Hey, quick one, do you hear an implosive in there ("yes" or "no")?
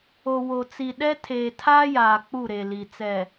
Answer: yes